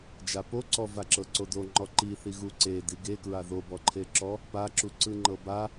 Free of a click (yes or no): no